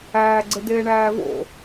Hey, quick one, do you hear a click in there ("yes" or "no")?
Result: yes